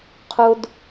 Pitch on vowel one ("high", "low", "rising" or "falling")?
low